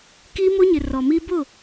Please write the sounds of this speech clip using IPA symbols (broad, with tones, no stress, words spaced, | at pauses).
ki˦mo˦ɲɪ˨ rɔ˨mi˦ bʊ˦˨